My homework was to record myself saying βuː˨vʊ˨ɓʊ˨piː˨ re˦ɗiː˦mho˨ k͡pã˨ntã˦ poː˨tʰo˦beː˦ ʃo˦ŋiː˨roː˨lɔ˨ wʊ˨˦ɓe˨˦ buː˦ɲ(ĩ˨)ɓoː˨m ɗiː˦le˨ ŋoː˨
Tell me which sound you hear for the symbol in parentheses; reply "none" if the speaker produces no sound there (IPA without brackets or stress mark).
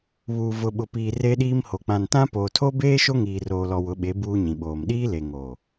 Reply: ĩ˨